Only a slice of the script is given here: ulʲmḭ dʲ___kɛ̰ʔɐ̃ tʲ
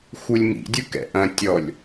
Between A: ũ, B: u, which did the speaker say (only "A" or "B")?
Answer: B